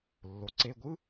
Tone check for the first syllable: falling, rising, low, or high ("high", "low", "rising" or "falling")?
rising